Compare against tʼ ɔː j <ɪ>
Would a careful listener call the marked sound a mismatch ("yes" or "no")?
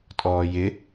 no